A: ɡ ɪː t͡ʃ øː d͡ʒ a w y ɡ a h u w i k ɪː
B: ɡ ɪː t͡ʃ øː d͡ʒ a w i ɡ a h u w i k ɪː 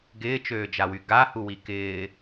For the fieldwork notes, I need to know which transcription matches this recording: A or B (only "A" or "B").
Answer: A